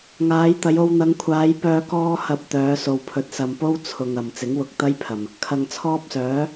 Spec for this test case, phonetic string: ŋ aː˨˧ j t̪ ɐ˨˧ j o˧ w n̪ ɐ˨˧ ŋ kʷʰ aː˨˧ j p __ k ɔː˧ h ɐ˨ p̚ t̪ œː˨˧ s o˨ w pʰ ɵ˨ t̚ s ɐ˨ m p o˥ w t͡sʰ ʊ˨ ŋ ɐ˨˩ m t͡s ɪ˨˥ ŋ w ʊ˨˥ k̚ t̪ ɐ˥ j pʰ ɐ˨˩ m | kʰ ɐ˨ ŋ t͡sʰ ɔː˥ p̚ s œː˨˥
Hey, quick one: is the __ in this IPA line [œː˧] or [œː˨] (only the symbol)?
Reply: œː˧